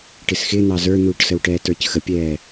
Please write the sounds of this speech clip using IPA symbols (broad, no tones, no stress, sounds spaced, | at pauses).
ʈ ɪ s x ɪ n̪ ɑ z ə˞ n̪ uː ʈ s ə w ʈ ɛː t ə˞ c x ə pʲ ɛː